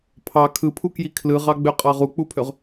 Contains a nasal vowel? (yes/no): no